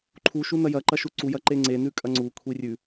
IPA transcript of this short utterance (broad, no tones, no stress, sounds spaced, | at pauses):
ǃʰ u ʃ u n ɐ j ɐ ǃ ɐ ʃ u ǀ u j ɐ ǃ e ŋ͡ǀ e n ʉ kʼ ɐ ŋ͡ǀ u kʷʰ i rʲ ʉ